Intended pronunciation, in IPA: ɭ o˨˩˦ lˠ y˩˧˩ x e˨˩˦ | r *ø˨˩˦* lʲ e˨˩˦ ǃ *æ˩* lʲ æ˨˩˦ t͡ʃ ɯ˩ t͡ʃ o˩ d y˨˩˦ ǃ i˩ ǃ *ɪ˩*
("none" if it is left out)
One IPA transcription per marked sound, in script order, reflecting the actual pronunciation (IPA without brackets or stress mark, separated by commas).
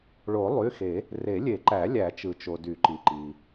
e˨˩˦, æ˨˩˦, i˩